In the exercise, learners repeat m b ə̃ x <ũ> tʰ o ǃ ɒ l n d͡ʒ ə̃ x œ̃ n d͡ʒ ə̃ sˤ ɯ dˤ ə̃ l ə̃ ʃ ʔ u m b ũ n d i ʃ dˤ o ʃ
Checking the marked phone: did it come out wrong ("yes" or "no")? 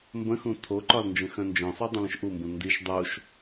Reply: no